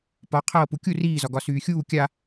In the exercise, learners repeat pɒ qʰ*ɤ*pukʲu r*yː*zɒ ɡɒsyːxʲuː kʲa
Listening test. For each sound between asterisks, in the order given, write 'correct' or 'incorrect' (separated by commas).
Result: incorrect, incorrect